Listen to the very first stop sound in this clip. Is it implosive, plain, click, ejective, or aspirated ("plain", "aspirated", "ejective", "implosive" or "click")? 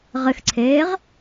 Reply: click